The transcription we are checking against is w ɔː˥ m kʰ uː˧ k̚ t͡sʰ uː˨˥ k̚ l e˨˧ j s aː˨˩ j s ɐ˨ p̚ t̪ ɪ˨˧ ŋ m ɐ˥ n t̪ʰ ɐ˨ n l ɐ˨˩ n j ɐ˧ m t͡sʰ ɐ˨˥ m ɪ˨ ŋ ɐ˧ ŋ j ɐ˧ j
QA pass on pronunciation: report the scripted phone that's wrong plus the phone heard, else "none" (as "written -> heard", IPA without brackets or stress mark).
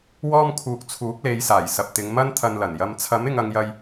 none